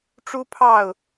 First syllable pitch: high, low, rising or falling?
high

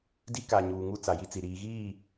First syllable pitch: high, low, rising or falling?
high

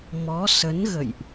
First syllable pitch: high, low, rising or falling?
rising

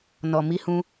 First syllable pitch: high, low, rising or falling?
low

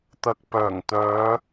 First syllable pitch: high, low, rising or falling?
low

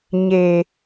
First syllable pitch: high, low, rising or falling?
low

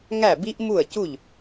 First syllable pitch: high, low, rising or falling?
falling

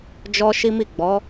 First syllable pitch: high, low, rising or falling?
high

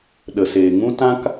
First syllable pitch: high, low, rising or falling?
low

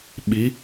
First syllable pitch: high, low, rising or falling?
rising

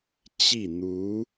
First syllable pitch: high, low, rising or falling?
falling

